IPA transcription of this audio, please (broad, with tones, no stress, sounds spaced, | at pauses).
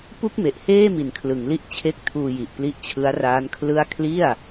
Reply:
p u˥˩ k̚ m e˨˩ ʔ h eː˥˩ m i˨˩ n kʰ l ɯ˩˦ ŋ l i˦˥ ʔ t͡ɕʰ e˦˥ k̚ tʰ uː˧ j i˨˩ ʔ p l i˦˥ ʔ t͡ɕʰ ɯ˦˥ a̯ r aː˦˥ n kʰ l ɯ˥˩ a̯ kʰ l i˥˩ a̯